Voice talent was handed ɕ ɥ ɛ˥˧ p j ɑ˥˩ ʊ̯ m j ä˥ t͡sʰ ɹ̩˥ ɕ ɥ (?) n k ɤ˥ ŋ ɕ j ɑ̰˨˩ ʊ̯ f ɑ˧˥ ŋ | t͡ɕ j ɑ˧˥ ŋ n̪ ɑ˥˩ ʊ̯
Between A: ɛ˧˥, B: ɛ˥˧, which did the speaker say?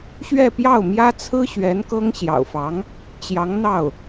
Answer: A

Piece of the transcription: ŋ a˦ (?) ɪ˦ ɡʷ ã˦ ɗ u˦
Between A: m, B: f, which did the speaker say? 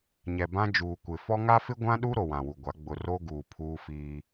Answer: B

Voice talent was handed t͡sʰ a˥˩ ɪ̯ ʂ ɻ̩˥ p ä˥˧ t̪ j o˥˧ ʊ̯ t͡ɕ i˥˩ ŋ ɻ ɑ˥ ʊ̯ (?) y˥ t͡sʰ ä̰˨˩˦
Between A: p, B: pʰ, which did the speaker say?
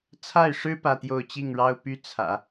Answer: A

